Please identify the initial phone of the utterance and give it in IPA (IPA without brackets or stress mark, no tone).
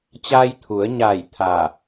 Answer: t͡ɕ